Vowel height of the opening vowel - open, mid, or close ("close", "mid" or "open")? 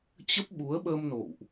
mid